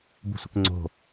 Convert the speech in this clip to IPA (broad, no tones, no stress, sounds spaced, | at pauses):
b ṳ sʷ ɪ k ŋ͡ǀ o̤